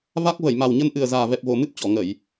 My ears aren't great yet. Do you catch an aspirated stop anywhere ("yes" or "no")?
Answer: no